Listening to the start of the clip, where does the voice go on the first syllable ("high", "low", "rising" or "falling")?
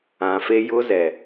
low